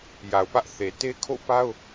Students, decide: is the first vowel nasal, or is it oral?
oral